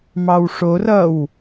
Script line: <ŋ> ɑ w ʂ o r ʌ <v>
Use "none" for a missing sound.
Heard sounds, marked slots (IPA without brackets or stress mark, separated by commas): m, w